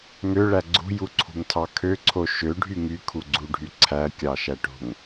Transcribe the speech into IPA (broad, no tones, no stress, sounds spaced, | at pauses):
ŋ ø ɭ æ ɡ͡ǀ ṳ j u ǀʰ ṳ ŋ tʰ ɑ kʰ ø ǀʰ o ʃ ø ɖʱ y ŋ y kʰ u ɡ͡ǀ u ɖʱ y ǀʰ æ kʲ ɑ ʃ æ ʈ o̤ ŋ